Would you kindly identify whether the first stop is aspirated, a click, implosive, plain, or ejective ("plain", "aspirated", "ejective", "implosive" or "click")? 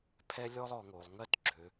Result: aspirated